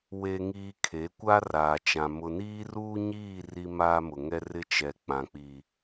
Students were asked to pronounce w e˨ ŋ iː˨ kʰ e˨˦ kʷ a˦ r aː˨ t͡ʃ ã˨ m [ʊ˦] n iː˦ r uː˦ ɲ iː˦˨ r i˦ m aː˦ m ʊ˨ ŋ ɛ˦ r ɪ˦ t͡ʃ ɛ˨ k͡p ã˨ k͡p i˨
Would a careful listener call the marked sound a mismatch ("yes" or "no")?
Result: yes